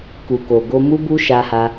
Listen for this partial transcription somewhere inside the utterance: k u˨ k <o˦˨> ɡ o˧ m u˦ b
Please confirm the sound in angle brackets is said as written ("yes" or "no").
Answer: no